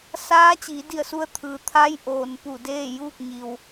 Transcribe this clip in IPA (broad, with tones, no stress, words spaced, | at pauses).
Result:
saː˧˥t͡ɕiː˩˧di˧˩ə̯su˧ə̯ t̪ʰɯː˩˧t̪ʰa˧˥j ʔoː˩npu˧˩deː˥˨juː˥˨k̚ ɲi˩w